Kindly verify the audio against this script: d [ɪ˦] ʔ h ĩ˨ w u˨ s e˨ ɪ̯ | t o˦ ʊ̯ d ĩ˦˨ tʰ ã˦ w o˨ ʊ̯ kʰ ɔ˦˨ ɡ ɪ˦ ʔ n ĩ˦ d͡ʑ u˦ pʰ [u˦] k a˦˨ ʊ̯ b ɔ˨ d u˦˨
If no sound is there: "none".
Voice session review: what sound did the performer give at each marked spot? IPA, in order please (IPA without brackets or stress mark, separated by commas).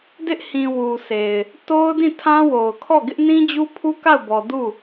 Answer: ɪ˦, u˦